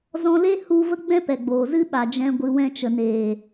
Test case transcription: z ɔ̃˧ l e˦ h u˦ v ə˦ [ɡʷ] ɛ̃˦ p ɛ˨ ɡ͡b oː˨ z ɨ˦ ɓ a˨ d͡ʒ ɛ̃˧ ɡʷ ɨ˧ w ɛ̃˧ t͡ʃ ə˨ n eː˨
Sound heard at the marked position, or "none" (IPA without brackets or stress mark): ɡ͡b